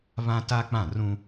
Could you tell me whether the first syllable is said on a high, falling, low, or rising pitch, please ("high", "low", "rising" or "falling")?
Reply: high